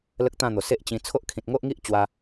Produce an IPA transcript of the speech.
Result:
l ə˦ k̚ t̪ ã˥˧ n̪ o˨˩ s e˦ ʔ t͡ɕ ĩ˧ t͡sʰ o˦ ʔ kʰ ĩ˨ t̚ ŋ o˦ ʔ ŋ i˦ ʔ t͡ɕ w a˧

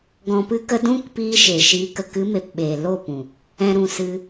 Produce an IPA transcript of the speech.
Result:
ɡ ɔ̃˨ p ɨ˧ k ə˧ d ũ˦ k p iː˧ ʃ e˨ ʃ iː˧ k ə˨ k ɨ˨˦ m e˨ p ɓ eː˨ l o˦˨ p ũ˨ | ɛ̃˨ ɾ ũ˨ s ɨ˧

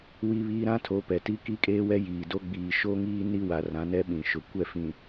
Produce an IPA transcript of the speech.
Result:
w i˦ β iː˦ ɾ ã˦ tʰ o˨˦ p ɛ˨ t i˦ k i˦ kʼ eː˦ w ɛ˦ j iː˨ d o˦ ɡ͡b iː˨ ʃ o˦ ŋ iː˦ n i˦ w a˨ r ã˨˦ n ɛ˦ ɓ ĩ˨ ʃ ʊ˨ kʷ ɛ˦˨ f ĩ˨

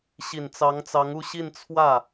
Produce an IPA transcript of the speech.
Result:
ɕ i˨˩ n t͡s ɑ˧˥ ŋ t͡s ɑ˧˥ ŋ u˥˧ ɕ i˥˧ n t͡sʰ w ä˥˩

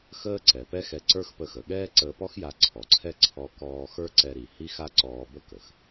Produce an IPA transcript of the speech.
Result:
x əː˥ ǀ ɛ˩ p ɛ˥ x ɛ˧ ǀ ə˞˥ x p ə˧ x ə˩ ɠ ɛː˥ ǀ əː˧ p ɔ˥ x j a˧ ǀʰ ɔ˩ ǀʰ ɛ˥ ǀʰ ɔ˧ k ɔː˧ x ə˞˥ ǀ ɛ˧ ɾ i˩ h i˥ x a˥ ǀ ɔː˧ b ə˥ k ə˩ x

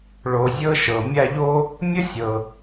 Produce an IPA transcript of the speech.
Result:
ɭ o˨ zʲ ɤ˦ ʃ ɤ˩ mʲ a˦ ʎ o˥ | mʲ ə˥ sʲ ɤ˩

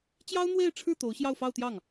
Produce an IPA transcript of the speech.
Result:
t͡ɕ j ɑ˥ ʊ̯ n̪ w e˥˧ ɪ̯ ʈ͡ʂʰ ɻ̩˥˩ t̪ o˧˥ ʊ̯ ɕ j ɑ˥˧ ʊ̯ f ɑ˥˧ ʊ̯ t̪ j ɑ˥˩ ŋ

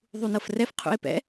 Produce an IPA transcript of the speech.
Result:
ðˤ u n ɤ f r ɛ f qʰ ṵ e̯ p ɛ̰

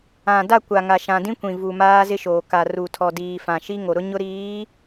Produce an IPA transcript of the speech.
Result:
ã˨ d a˦˨ kʷ a˨ ŋ a˨ ʃ ã˨ d ĩ˦ kʷ ĩ˨ v u˨ m aː˦ z ɪ˦ ʃ oː˨ k a˨ r u˨ tʰ ɔ˨ d iː˨ f ã˨ ʃ i˦ ŋ o˨ ɾ ʊ˦ ɲ ʊ˦ ɾ iː˨˦

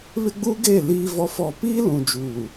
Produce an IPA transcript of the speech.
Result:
β ɪ˦ ɡ͡b uː˦ ɡ eː˦˨ l iː˦ v ɔ˦ f ɔ˦˨ p iː˦ l ũ˨ d͡ʒ uː˨

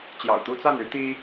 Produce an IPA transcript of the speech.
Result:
t͡ɕ j ɑ̰˨˩ ʊ̯ t̪ u˦ t͡s a˥˨ n y˦ t̪ i˦

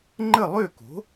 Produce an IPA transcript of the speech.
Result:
ŋ͡ǃ ə˥˨ lˠ ø˥˨ k o̤˩˥

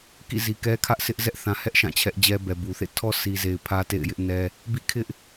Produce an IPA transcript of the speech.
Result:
k ḭ˦˨ z i˨ k ɛ˦ kʰ ä˦ ʔ sʰ ɪ˦ ʔ z ɛ˦ ʔ θ ã˨ h ɛ˦ ʔ ʃ ã˦˨ t͡ɕʰ ɛ˦ ʔ d͡ʑ ɛ˦ b ɛ˨ b u˨ θ ḛ˦˨ tʰ ɔ˦ sʰ i˨ z e˨ ɪ̯ pʰ ä˦ t ḛ˦˨ ɪ̯ j ɪ˦ ʔ n ɛ˦ | b ḭ˦˨ kʰ ɪ˦ ʔ

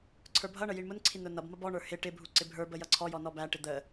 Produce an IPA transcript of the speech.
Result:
ǀʰ ə˞ bʱ ʌ ɳ ə j i ɳ m ʊ n ǀʰ i n ʊ n ʌ b m ʌ b ɔ ɳ ə˞ h ɪ ʈ ɪ bʱ u ǀ ɪ bʱ ə˞ b ə j ʌ ǀʰ ɔ j ɔ n ɔ b æ ʈ ɪ d̪ ə

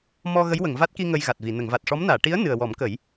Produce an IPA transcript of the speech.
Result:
m ɔ˧ ɣ ə˧˥ j w ə˨˩˨ ŋ v a˦˥ t̚ k i˧ ŋ ə˧ j ɣ a˨˩ t̚ v i˨˩˨ n ə˨˩˨ ŋ v a˨˩ t̚ ʂ ɔ˧˥ m n aː˨˩˨ ʈ i˧˥ ə̯ n ɨ˨˩ ə̯ w ɔ˨˩˦ m k ə˨˩˦ j

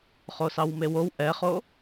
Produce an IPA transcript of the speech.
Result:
χ o s ɑ w m e w o w ʔ ɛ χ o

